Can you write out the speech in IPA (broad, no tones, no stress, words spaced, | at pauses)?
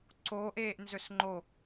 ǀoʔeːʔ nzɵsŋ͡ǃo